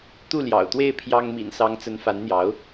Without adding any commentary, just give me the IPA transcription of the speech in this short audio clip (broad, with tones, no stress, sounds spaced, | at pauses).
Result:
t̪ u˥˩ l j ɑ̰˨˩ ʊ̯ t̪ w e˥˩ ɪ̯ pʰ j ɑ˥ ŋ m ḭ˨˩ n s ɑ˧˥ ŋ t͡s ə˧˥ n f a˧˥ n n̪ j ɑ˧˥ ʊ̯